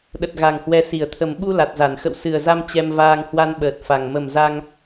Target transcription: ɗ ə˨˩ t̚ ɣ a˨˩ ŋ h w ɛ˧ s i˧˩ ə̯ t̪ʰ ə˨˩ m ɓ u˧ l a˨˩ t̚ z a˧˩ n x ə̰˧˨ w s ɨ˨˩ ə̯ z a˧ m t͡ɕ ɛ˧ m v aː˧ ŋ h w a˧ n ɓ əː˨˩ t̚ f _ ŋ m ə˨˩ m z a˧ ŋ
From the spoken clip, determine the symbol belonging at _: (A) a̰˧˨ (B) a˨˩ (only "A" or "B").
B